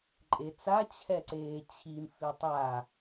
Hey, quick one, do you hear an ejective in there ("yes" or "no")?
yes